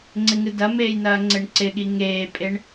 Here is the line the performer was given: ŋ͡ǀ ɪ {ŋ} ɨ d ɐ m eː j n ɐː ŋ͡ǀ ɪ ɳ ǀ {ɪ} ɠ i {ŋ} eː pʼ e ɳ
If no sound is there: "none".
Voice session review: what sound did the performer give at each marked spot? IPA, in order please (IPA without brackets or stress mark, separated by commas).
ŋ, ɪ, ŋ